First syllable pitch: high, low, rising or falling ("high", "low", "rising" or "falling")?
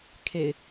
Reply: low